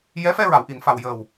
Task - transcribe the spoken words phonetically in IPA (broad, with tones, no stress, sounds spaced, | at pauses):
j ɛ˧˥ f ɛ˧ ɹ a˨˩˨ w ʔ i˨˩˨ n f a˨˩ w j əː˨˩ w